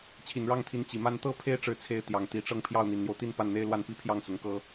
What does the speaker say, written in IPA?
t͡ɕʰ i˨˩ n ɻ ɑ˥˩ ŋ t̪ʰ i˧˥ n t͡ɕ i˨˩ m a˥ n t̪ ɤ˥ pʰ e˥ ɪ̯ ʈ͡ʂ ɻ̩˧˥ t͡sʰ e˧˥ ɪ̯ t̪ j ɑ˨˩ ŋ t̪ i˧˥ ʈ͡ʂ ɤ˥˧ ŋ pʰ j ɑ˥˩ ʊ̯ n̪ i˨˩ n n̪ j o˦ ʊ̯ t̪ i˥˧ n p a˥˩ n n̪ e˥ ɪ̯ l w a˥˧ n p i˥˧ pʰ j ɑ˥˩ ŋ s ʊ˧˥ ŋ k ɤ˥

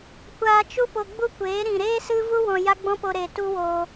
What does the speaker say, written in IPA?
kʷ aː˧ t͡ʃ u˦ p o˧ ɡ͡b u˦ kʷ eː˨˦ ɾ ĩ˨ ɾ eː˦ s ɨ˦ v u˦ w ɔ̃˧ j a˦ ɡ͡b ɔ̃˦ p o˧ ɾ e˨ t u˦ w o˧

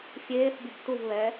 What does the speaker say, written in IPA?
fʲ eː θ bʲ ɨ b t u v β ɛ

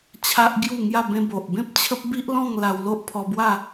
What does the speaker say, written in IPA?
t͡ɕʰ a˦ ʔ ɡ j u˥˧ ŋ j a˥˧ b ẽ˧ b o˨ ʔ b ẽ˦ p̚ t͡ɕʰ ə˦ p̚ b i˦ ʔ l ɔ̃˥˧ ŋ l a˧ w l o˦ ʔ pʰ ɔ˧ b w a˥˧

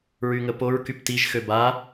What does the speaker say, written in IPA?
ɹ y ŋ ə p o ɹ k y p t i ʒ x ø b a

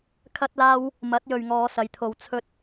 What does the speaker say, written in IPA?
kʰ ɐ˥ t̚ l aː˥ w | m ɐ˨˥ t̚ j ɵ˨ ɥ ŋ ɔː˨˧ s ɐ˨˧ j t̪ʰ o˧ w t͡sʰ ɵ˥ t̚

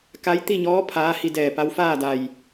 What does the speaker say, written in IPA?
k a˧˥ j t̪ i˥˨ ɲ ɔː˧˥ pʰ aː˧˥ h i˧ d ɛː˧˩ p a˧˥ w f aː˥˨ d a˧˩ j

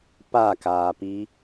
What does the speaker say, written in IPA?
p a k aː p i

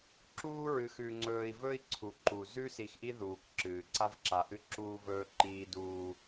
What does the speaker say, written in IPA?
ǁ uː˦ ɹ ɨ˨ x ʉ˨ ŋ͡ǀ ɵː˨ i̯ v ɵ˦ i̯ ǀʰ u˨ ǃ u˨ z ʉ˦ s i˨ x ʔ i˦ ð uː˨ k ǁ ɨː˨ ǀ a˦ v ǁ a˨ ʔ ɨ˦ ǁ uː˦ v ɵː˦ ǃ iː˦ d uː˦

